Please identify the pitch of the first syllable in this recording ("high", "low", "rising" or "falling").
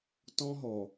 high